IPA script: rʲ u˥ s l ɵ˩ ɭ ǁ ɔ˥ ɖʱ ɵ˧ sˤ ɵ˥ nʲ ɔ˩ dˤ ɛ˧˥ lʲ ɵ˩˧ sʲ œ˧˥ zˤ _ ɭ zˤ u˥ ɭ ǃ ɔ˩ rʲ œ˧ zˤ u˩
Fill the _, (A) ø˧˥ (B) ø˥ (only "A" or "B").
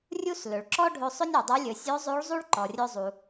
A